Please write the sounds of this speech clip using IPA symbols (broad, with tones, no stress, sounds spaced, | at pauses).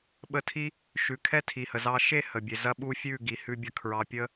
ɓ ə˧ tʰ i˦ | ʃ ʉ˨ kʰ ɛ˦ tʰ i˨ h ə˨ z ɑ˧ ʃ e˦˨ h ə˨ bʲ e˨ z ɐ˦ ɓ u˦ fʲ ʉ˦˨ ɡ i˨ h ʉ˧ bʲ ɐ˧ kʰ ɹ ɑ˧ pʲ ə˦